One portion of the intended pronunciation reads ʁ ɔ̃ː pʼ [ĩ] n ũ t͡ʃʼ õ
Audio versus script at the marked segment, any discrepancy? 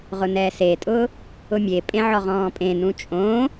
yes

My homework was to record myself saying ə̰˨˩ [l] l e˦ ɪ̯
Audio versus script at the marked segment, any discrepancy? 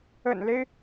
yes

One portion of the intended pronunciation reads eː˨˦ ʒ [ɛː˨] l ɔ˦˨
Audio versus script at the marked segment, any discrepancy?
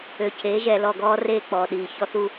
no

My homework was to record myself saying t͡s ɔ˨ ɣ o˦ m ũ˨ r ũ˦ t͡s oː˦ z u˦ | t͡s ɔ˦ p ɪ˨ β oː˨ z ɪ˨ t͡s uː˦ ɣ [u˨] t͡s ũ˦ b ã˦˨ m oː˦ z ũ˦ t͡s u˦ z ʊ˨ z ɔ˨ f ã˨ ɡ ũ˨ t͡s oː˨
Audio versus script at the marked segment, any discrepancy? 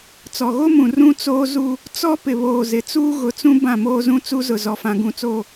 yes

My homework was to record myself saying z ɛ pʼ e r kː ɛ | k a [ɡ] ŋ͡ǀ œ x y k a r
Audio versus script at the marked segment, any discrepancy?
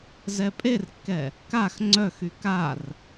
yes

